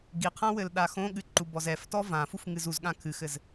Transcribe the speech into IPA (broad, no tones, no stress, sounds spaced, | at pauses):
ɡ i qʰ ã w ɘ l ɗ a x õ ɠ ɨ ǃ u b ɔ z ɛ f t ɔ v ã f u f ŋ ɨ z u z ɠ ã kʰ ɨ x ɘ z